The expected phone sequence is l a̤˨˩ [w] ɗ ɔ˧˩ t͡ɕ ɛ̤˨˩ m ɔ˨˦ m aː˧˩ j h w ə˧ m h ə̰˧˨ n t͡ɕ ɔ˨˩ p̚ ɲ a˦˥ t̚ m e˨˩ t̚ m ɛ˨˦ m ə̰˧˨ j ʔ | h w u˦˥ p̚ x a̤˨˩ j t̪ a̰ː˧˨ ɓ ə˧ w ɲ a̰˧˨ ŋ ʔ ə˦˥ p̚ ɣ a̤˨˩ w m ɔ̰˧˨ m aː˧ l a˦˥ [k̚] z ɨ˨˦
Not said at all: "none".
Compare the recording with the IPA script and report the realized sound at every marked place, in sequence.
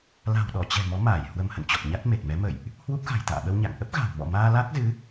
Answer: w, k̚

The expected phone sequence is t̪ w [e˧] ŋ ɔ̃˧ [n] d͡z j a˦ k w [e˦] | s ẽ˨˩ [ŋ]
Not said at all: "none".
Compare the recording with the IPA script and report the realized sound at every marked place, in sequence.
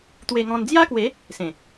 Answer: e˧, n, e˨˦, none

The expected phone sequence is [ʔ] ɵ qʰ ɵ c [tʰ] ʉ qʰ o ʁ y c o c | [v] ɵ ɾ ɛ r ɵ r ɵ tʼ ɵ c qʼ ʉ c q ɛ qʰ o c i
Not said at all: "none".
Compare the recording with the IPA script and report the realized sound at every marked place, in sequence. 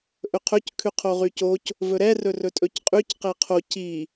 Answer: ʔ, kʰ, v

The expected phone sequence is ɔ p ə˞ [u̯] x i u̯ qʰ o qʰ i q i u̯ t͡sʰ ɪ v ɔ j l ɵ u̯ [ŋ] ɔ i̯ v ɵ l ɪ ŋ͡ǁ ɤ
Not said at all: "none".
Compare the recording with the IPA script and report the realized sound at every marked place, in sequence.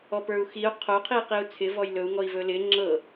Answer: u̯, ŋ

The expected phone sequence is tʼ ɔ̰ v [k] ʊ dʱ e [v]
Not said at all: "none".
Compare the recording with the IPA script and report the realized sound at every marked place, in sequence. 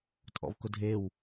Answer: k, w

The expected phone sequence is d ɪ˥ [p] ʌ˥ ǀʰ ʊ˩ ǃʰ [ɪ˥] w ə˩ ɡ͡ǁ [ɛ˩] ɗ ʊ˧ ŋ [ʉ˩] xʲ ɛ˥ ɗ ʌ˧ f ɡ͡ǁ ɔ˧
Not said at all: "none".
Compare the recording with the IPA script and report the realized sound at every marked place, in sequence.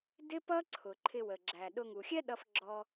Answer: p, ɪ˧, æ˩, u˩

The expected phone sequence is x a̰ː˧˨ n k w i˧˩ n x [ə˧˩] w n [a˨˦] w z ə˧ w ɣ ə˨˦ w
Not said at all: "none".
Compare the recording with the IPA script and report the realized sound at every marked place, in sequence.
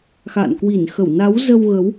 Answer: ə˧˩, a˨˦

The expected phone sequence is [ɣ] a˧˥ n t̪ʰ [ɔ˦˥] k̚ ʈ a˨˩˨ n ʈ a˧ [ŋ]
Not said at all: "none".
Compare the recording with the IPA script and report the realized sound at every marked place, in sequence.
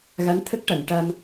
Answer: ɣ, ə˦˥, m

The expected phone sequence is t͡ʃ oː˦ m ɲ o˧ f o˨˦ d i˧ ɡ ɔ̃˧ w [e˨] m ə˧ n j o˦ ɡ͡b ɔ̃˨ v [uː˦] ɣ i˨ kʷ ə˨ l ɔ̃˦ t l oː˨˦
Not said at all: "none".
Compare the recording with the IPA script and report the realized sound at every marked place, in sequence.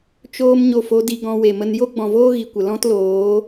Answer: e˨, oː˦

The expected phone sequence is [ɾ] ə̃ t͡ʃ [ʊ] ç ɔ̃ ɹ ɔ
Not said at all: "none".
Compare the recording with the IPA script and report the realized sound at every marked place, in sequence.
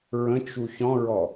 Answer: ɹ, u

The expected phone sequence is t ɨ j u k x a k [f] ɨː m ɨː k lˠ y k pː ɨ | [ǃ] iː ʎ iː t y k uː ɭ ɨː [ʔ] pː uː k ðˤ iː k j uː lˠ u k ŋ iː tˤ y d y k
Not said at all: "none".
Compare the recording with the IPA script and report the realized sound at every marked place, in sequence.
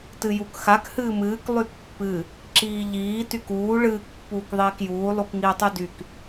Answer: h, ǁ, k

